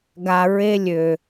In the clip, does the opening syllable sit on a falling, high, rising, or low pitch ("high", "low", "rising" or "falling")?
low